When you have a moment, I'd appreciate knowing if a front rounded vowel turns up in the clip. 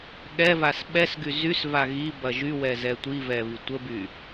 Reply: yes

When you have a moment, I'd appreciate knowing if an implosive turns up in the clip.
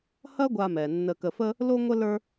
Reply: no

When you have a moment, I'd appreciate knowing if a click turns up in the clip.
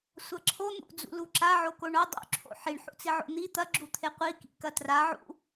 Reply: yes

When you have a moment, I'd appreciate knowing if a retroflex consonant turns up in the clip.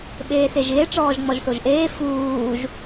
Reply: yes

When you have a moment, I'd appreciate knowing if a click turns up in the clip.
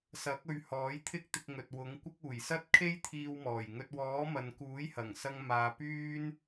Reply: no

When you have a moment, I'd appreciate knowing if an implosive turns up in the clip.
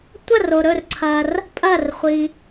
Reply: no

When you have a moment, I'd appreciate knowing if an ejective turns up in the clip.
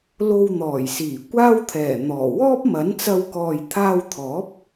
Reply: no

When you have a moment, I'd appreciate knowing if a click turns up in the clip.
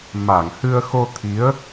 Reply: no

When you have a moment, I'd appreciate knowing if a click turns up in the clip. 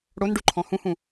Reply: yes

